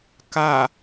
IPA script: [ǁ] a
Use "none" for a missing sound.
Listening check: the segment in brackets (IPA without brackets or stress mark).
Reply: k